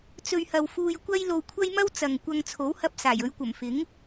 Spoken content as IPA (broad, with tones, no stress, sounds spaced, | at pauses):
t͡s ɵ˧ ɥ h ɐ˧ w f uː˧ j kʷ ɐ˥ j l o˧ w kʷʰ ɐ˥ j m ɐ˥ w t͡s ɐ˨ ŋ kʷ ɐ˧ ŋ t͡sʰ o˨˥ w h ɐ˧ p̚ s aː˨˩ j ɵ˨˧ ɥ kʷ ɐ˨˩ m f ɪ˨˥ ŋ